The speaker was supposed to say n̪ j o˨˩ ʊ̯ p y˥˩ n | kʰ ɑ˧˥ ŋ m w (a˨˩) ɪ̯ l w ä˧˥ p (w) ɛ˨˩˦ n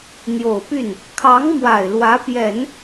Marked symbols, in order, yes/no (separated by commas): yes, no